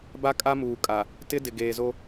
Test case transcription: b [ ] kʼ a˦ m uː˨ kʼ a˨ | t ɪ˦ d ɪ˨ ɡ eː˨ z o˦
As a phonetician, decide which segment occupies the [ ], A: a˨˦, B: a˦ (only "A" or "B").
B